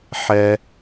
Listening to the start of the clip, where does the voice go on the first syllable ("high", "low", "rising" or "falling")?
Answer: low